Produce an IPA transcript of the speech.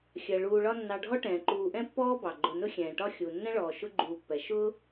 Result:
xʲɜ˩ ɭuː˨ɭɒ˦ nːɑ˨ɖʱɔ˥ ʈɛ̃ː˩ǃuː˨ʔɛ̃˥pːɔː˥ bɑ˩ɡ͡ǃʊ˨ nʊ˦xʲɛ̃ː˩ʈɒ˦ xʲu˩ nːɛ̃˥ɭɔː˩ ʃʊ˥ɡ͡ǃuː˨pːɛ˩ ʃʊː˥

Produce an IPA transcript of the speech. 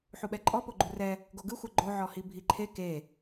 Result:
ħuɓɛǃʼɔ poɡ͡ǃurɛ | ɡoɡɯxʷɛ ɡ͡ǃoʕɔhi bʱiǃʰe ke

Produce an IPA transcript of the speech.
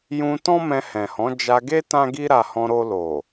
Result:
jũ˧ tɔ̃˦mɛ̃˧hɛ̃˨hɔ̃˨˦ d͡ʒa˧ɡe˦ tã˦ɡi˦ɾa˧ hɔ̃˧ɾo˧lo˨

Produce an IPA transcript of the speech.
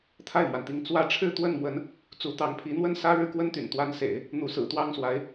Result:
t̪ʰa˥˩ɪ̯mwa˩nt̪i˧˥ŋ t͡swä˥ ʈ͡ʂʰɻ̩˥˧t̪wə˥˩n mwə˧˥n | t͡su˧˥t̪ɑ˧˥ŋ pʰi˧˥n̪wə˥nsä˥ ɻɻ̩˥˩kwə˥nt̪y̰˨˩n t̪wa˧˥nsḛ˨˩˦ɪ̯ | n̪u˧˥sɹ̩˨˩t̪wɑ˥ŋswa˧˥ɪ̯

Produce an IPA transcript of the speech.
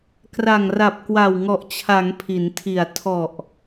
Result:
kra˨˩ŋra˨˩p̚ kwa˨˩wŋɔ˨˩ʔt͡ɕʰa˩˦ŋ pʰi˩˦ntʰi˨˩a̯ tʰɔ˨˩ʔ

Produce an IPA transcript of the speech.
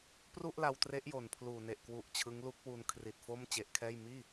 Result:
pru˥˩ʔla˧wtre˦˥ʔjo˨˩n pʰluː˨˩ ne˨˩ʔkwu˨˩ʔ t͡ɕʰɯ˦˥ŋlu˦˥k̚wu˧n kʰri˨˩t̚ fo˥˩mt͡ɕe˦˥ʔkʰɛː˥˩j miː˥˩

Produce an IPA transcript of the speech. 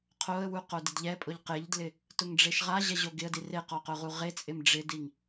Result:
qʰoə̯wu qodɪdʎɛpʼʊʎ qɪʎdlɪ | tʊŋɖ͡ʐeʃʁaʑɛ ʑoɡɪə̯di reqɔ qʊʁuʁet͡sʼɪm ɖ͡ʐɪdiŋ

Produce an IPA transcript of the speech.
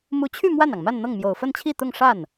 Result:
mu˧˥t͡ɕʰy˥˧ mwa˥˩nɑ˩ŋma˥˧n n̪ɤ˥˩ŋmjo˨˩ʊ̯ fə˥˧nt͡ɕʰi˥˧ t̪ʊ˥˧ŋʂa˥˩n

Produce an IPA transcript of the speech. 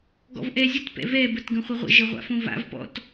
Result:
ɡɔ̰vʔɛzʲət pɛ̰vɛ bətɡə̃χʷəʁʷə̰ ʒəʁʷa̰fõva̰v pɔ̰t

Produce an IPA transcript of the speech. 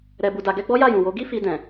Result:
ɾɛ˧bu˧da˧ɡɛ˦ ɡ͡bɔ˦ja˦˨jũ˨wo˨˦ ɡi˦fi˧ dɛ̃˨

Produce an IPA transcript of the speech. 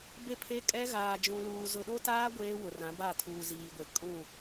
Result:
be˦pʰe˦kʼɛ˦ ɣaː˨d͡ʒũ˨luː˨ zʊ˨ɗo˦taː˦ ɡʷeː˦wʊ˨rã˨˦ ba˦˨tʰuː˨ziː˨ɡʷe˨ kʼũ˦˨

